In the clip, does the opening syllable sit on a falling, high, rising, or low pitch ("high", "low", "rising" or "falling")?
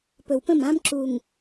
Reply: low